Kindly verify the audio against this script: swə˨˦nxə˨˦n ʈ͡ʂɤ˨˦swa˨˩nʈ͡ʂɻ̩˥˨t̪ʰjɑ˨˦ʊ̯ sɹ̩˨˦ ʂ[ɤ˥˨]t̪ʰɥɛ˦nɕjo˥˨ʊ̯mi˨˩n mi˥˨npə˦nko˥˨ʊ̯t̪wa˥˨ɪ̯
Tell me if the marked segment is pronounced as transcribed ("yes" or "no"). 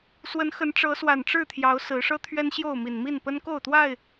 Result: no